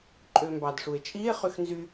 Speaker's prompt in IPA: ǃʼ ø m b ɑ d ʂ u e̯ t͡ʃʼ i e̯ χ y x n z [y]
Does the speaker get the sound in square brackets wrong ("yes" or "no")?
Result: no